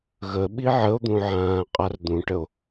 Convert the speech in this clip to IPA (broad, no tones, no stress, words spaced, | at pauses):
ɣə ɓiʕəo̯d̪ũ ʕãːqʼard̪ũʈəo̯